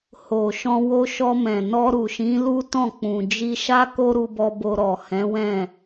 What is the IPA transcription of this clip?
h o˨ ʃ ɔ̃˧ w o˧ ʃ ɔ˧ m ɛ̃˨ n ɔ˧ ɾ u˨ ʃ ĩ˨˦ l u˦ t ɔ̃˦˨ k͡p ũ˨ d͡ʒ i˧ ʃ a˦ k o˦ ɾ u˧ b ɔ˧ b o˧ ɾ ɔ˨ h ɛ̃˨˦ w ɛ̃˦˨

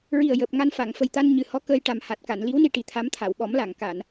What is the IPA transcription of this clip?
ɹ i˨˩ ə̯ j əː˨˩ p̚ ŋ a˧ n f a˨˩˨ ŋ f ə˨˩ j t̪ a˧ n ɲ ɨ˨˩ h ɔ˧˥ k əː˧ j ʈ a˨˩ m h a˨˩ t̚ k a˨˩˨ n l i˧˥ w n i˧ ʈ i˨˩ t̪ʰ a˧˥ m t̪ʰ a˨˩˨ w ɓ ɔ˨˩˦ m l a˨˩˨ ŋ k a˨˩˨ n

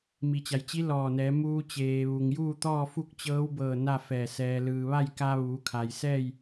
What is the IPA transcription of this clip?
m i˩ t͡ɕ a˩ j t͡ɕ i˧˥ l ɔː˧˩ n ɛː˩˧ m uː˧ t͡ɕ eː˩ ʋ u˩ ŋ j uː˥˨ t̪ ɔː˥˨ f u˥˨ k̚ t͡ɕ ɤː˧˥ w b ɤː˧˩ n a˥˨ f ɛː˧˩ s ɛː˩ l ɯː˩ ʋ a˥˨ j k a˧ ʋ uː˩˧ kʰ a˩ j s ɛː˥˨ j

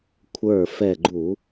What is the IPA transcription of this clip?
kʷʰ ə˞˧˩ f ɛ˧˩ ɡ͡ǃ u˧˩˧

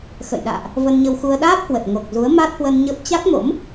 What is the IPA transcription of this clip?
x ə̰˧˨ j ɗ a̰ː˧˨ ʔ | v ə˧ n ɲ ə˧ w x u˧ ə̯ ɗ aː˦˥ p̚ h w ə˨˩ t̚ ŋ o˨˩ k̚ z u˨˦ ə̯ m a˦˥ t̚ h w ə˧ n ɲ ə˦˥ p̚ t͡ɕ a˦˥ k̚ m o̰˧˥ m

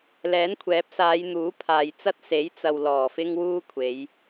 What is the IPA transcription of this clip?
l ɛː˨˥ n kʷʰ ɛː˨˥ p̚ s aː˨˧ j n̪ uː˨˥ pʰ aː˨ j t͡s ɐ˥ t̚ s e˨˥ j t͡s ɐ˧ w l ɔː˨˩ f ɪ˥ ŋ w uː˥ kʷʰ e˨˧ j

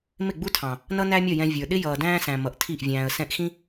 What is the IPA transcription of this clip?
m ɪ˦˨ ɡ͡b u˦ tʰ ɑ̃˨ | n ʌ˦ n æ˦ mʲ ʌ˦˨ j ɛ̃˧ vʲ ə˞˨ ɗ ɪ˦ j ʌː˨ d æ̃ː˦ s æ̃˨ m ʌ˨ ʔ tʰ i˦˨ ʔ vʲ æ̃ː˧ ə̯ s ɛ̃˧ ʔ x ĩ˦

